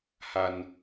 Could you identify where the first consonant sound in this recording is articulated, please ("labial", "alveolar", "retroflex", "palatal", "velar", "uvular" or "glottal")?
glottal